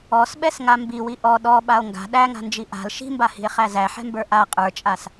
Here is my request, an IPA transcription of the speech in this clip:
ɔ s ɓ ɛ s ŋ a m b i w i ʔ ɔ ɗ ɔ ɓ a o̯ ŋ ɡ a̤ ɗ æ ŋ a̤ n d͡ʒ i ʔ a̤ l ʃ i̤ m b a h i̤ e̯ χ æ z æ ħ ɛ̤ m b ə˞ ʔ a qʼ ə˞ t͡ʃʼ a s

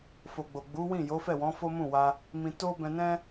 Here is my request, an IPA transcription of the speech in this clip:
f o˨ ɡ͡b o˨ ɡ͡b u˨˦ w ĩ˦˨ j o˨˦ f ɛ˦˨ w ɔ̃˨˦ f o˦ m ũ˦˨ w a˧ | m ĩ˧ t o˦ b ɛ̃˧ n ɛ̃˦

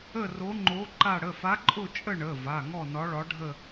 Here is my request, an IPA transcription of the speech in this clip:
ə˥˧ r o˧˥ ŋ͡ǃ o˧˥ ǃ a˥˧ ɽ ə˩˧˩ f a˧˥ ǃʼ ʊ˥˧ t͡ʃʼ ə˥˧ ɳ ə˩˧˩ v a˩˧˩ ŋ ɔ˥˧ n ɒ˧˥ ɭ ɒ˧˥ ɖʱ ə˥˧

